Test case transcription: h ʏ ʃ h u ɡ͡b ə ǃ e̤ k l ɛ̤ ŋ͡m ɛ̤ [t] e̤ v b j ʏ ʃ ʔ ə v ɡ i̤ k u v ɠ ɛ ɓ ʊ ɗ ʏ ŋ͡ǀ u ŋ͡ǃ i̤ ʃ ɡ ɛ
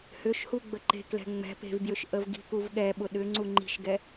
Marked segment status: incorrect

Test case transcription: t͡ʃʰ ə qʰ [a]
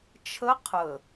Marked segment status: incorrect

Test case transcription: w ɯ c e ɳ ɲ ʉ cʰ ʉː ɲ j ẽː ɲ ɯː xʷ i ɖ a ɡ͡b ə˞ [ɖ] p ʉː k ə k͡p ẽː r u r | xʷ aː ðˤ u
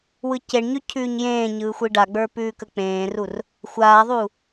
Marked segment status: incorrect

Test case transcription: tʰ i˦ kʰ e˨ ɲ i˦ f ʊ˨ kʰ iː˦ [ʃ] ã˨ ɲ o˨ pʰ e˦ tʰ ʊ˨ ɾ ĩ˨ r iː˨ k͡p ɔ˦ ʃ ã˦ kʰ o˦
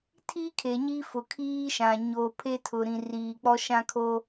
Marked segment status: correct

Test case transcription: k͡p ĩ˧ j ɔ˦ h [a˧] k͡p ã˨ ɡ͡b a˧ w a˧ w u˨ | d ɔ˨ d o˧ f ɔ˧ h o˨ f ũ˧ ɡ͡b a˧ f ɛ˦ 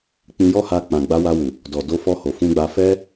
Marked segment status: correct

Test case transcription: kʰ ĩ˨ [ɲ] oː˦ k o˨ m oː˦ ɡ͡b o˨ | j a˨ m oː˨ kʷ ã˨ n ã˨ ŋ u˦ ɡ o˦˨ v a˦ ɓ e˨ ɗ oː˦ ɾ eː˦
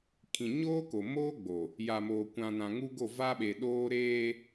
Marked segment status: correct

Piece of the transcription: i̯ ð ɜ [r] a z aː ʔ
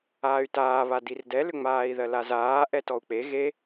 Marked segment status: incorrect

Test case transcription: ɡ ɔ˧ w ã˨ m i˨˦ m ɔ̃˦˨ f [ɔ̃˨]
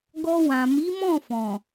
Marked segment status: correct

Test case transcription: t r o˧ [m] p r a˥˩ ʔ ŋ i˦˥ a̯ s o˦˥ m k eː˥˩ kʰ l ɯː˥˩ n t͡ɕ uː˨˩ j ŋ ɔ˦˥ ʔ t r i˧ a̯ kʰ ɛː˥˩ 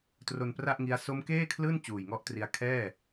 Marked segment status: incorrect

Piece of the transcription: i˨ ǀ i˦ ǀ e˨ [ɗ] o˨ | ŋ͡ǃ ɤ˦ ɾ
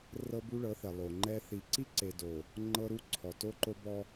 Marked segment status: incorrect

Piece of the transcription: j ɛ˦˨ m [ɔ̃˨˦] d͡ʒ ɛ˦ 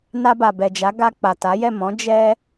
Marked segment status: correct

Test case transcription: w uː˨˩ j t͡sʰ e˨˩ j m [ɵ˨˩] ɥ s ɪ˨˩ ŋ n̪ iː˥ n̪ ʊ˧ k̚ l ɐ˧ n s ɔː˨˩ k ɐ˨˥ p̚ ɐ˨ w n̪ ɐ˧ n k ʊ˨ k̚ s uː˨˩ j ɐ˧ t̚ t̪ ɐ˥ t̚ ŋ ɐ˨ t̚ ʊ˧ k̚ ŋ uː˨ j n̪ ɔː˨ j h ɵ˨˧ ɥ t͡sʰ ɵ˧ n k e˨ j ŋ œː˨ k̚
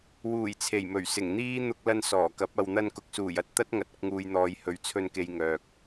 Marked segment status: correct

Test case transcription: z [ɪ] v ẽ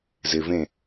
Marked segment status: correct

